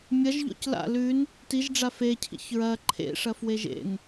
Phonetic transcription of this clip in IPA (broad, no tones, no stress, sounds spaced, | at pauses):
mʲ ɐ ʒ ʎ o̰ c l a̰ l ʉ n | t i ʒ ɖ͡ʐ a f e cʰ ḭ ç ɹ ɐ ǃʰ ḛ ʂ ɐ f w e ʒ ḛ n